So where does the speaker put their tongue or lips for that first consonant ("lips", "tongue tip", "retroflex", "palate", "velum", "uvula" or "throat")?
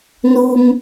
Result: tongue tip